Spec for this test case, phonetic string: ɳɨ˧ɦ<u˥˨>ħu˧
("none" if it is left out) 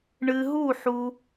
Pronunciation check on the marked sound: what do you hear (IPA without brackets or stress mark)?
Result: u˥˨